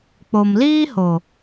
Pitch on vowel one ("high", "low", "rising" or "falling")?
low